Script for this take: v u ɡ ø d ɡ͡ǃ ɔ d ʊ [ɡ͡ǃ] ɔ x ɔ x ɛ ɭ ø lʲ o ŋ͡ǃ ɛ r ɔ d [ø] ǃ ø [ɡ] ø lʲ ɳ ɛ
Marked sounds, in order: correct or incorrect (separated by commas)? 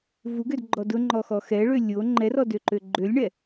incorrect, correct, incorrect